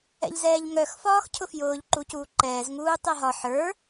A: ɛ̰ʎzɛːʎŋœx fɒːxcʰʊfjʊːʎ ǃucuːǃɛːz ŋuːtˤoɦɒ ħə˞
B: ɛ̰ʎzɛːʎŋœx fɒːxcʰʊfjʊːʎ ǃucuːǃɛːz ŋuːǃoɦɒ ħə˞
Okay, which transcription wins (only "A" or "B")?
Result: A